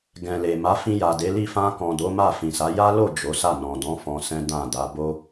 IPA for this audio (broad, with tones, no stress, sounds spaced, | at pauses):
ɡ ɛ̃˨ l e˨ m a˨˦ f ĩ˧ j a˨ d e˨˦ l i˦˨ f ã˧ k ɔ̃˨ d o˨˦ m a˦˨ f ĩ˨ s a˨˦ j a˦ l o˦˨ d͡ʒ o˨˦ s a˦˨ n ɔ̃˨ d ɔ̃˨˦ f ɔ̃˧ s ɛ̃˦ d ã˦˨ d a˨˦ b o˦